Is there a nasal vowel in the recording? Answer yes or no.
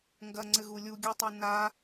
no